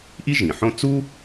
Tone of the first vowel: high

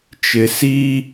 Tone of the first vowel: low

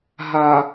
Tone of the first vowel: low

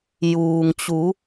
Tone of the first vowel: low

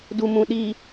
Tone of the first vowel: low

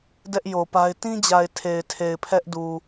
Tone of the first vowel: high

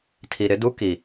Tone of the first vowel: low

